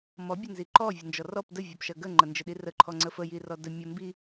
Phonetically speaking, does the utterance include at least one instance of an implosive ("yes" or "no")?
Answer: yes